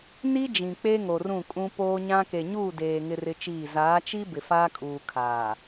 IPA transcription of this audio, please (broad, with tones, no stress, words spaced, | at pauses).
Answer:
ni˦ d͡ʒĩ˨k͡pe˦ŋo˨ rũ˦˨kʼũ˦ poː˦ɲã˦ ke˨ɲuː˦˨ deː˨ ŋɪ˦rɪ˦t͡ʃiː˦˨ zaː˨˦t͡ʃi˦ bɪ˨faː˦kʼuː˨ kʰaː˨